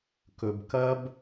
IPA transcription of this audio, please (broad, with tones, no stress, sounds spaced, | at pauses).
k ɵ˨ b k ɐ˧ b